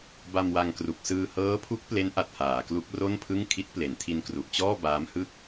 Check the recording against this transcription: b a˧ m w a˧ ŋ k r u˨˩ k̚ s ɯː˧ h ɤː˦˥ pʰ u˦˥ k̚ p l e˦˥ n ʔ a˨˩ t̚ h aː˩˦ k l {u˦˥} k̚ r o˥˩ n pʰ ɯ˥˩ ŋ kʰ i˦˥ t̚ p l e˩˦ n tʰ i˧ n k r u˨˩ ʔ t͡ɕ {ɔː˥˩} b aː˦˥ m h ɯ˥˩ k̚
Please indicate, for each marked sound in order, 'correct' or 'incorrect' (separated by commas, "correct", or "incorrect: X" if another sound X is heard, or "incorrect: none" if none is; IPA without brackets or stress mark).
correct, correct